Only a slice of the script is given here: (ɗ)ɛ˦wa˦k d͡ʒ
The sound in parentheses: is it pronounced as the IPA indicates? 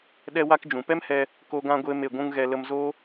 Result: yes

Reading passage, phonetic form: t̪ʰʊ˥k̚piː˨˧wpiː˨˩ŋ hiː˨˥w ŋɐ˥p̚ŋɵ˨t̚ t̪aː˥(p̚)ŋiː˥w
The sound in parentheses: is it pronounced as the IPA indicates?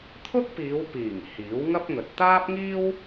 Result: yes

